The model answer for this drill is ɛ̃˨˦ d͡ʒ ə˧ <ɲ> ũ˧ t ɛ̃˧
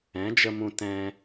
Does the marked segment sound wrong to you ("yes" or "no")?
yes